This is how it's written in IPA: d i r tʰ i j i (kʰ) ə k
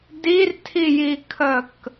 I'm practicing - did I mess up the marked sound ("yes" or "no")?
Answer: no